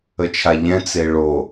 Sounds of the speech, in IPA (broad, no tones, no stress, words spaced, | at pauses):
ət͡ʃʰaʎɛ̃ t͡seɭo